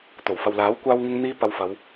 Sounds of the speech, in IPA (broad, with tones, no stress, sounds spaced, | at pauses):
t̪ o˨˩ w f ɐ˨ w l aː˨˥ w kʷ aː˥ w ŋ ɪ˥ ŋ n̪ iː˥ p ɐ˧ w f ɐ˨˧ w